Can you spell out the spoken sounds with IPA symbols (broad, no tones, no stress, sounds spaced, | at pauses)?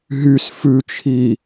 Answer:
ɦ y s f ʉ t͡ʃʰ i